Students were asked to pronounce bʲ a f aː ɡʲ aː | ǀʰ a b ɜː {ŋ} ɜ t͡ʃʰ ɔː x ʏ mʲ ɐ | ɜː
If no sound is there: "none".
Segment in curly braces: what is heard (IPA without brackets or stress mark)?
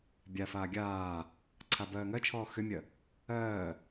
ŋ